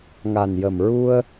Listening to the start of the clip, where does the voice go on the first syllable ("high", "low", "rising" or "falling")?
low